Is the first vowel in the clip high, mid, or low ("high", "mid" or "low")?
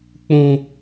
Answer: high